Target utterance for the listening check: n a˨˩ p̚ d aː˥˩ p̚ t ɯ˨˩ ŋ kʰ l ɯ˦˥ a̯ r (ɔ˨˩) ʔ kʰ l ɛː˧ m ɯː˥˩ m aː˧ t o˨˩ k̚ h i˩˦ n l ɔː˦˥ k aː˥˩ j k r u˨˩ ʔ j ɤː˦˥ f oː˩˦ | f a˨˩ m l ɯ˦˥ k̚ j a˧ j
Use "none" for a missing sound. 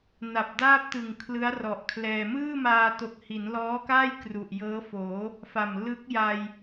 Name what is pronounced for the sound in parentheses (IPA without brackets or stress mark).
ɔ˨˩